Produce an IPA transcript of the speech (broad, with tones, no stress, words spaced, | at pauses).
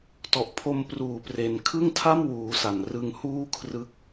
tɔ˨˩ʔpʰo˧mpruː˨˩pre˩˦n kʰɯ˥˩ŋtʰa˥˩mwuː˩˦ sa˨˩nrɯ˧ŋ huː˥˩ kʰrɯ˦˥k̚